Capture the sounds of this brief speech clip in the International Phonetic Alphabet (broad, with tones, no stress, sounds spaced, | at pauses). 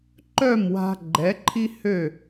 ǃ œ˥˩ m w a̤˧ ɡ͡ǃ ɛ˩˥ ǃʰ i˥ h ø˥˩